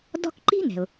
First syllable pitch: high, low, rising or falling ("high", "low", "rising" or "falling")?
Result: high